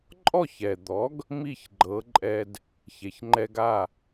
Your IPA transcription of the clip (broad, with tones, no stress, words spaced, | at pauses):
ǃʼɔ˥˩çɛ˩d̪ɔ˩˥ɡ | mi˥˩çɡ͡ǃɤ˩˥ǃʼɛ˧d | çe˩çŋ͡ǃɛ˧ɡa˥˩